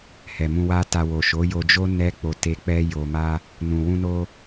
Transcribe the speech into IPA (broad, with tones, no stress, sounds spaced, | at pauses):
h ɛ˨ m ũ˧ w a˦ t a˧ w o˨ ʃ o˨˦ j o˧ d͡ʒ o˦ n ɛ˦ k͡p o˧ t e˧ k͡p ɛ˦ j o˧ m a˦ | n ũ˨ w ũ˧ n o˧